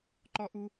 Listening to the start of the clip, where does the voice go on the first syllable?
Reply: high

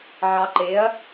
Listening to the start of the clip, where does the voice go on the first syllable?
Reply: low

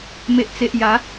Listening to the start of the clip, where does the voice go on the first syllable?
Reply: low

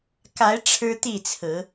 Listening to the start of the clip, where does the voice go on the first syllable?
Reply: rising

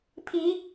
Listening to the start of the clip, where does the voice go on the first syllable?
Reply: rising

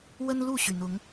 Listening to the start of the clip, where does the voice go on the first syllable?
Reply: high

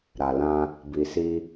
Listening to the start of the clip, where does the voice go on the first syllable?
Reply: low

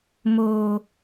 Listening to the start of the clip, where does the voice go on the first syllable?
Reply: low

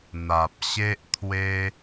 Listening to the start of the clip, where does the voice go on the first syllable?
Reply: low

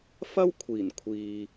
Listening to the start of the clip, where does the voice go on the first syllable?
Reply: high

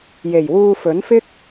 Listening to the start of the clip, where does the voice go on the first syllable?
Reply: low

